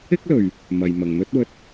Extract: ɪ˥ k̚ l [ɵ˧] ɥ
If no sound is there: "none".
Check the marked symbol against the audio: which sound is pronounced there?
ɵ˨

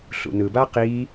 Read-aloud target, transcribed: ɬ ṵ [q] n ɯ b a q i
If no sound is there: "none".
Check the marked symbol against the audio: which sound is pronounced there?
none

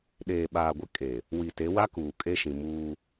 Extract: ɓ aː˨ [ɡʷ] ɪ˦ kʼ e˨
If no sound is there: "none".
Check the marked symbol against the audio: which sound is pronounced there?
ɡʷ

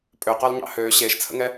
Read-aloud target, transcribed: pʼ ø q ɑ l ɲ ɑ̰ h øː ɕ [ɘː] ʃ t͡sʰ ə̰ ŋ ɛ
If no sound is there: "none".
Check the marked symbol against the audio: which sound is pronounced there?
eː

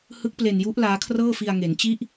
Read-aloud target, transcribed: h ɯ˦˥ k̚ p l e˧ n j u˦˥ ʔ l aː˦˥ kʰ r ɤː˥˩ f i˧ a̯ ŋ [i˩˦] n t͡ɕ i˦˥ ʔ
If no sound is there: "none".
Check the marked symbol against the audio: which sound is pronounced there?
e˩˦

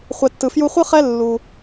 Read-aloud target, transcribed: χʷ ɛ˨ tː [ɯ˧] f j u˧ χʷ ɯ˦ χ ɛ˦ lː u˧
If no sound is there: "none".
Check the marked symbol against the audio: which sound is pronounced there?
ɯ˨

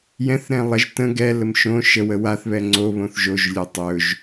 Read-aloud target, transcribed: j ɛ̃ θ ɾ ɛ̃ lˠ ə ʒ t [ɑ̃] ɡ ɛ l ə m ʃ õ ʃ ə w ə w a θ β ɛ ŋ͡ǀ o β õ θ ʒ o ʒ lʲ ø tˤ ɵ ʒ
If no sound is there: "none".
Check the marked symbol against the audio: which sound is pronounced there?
ə̃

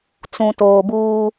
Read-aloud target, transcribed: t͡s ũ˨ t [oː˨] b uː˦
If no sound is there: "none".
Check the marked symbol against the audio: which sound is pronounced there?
oː˨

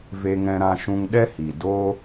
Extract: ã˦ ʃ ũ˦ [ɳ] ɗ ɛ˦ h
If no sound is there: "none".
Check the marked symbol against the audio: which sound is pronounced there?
ŋ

